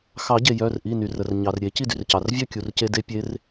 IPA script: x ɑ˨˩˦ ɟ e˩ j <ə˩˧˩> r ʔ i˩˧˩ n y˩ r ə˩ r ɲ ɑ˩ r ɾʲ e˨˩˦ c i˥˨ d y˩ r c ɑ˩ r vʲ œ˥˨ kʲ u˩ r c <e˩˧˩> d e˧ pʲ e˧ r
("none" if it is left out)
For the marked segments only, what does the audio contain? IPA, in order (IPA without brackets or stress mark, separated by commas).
œ˩˧˩, e˧